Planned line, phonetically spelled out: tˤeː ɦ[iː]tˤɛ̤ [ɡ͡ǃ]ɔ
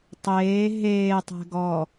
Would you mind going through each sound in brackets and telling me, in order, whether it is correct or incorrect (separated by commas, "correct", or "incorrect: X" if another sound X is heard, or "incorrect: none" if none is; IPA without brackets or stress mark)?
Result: incorrect: eː, incorrect: ɡ